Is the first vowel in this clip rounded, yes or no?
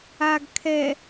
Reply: no